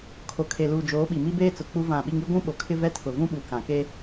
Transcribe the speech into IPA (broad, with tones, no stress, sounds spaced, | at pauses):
kʰ o˨ kʰ e˨ l uː˨ d͡ʒ oː˨˦ ɓ i˨ m i˦ b eː˦ t͡s ʊ˨ k͡p u˦ v ã˦˨ ɓ i˦ ŋ i˦ ɡʷ ũ˦ ɓ o˨ kʰ ɪ˦ v ɛ˦ tʰ ʊ˨ v ũ˦ ɓ u˨ k ã˨ k e˦